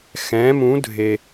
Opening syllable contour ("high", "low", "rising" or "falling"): rising